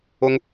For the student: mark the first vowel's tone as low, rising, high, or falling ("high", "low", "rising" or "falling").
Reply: high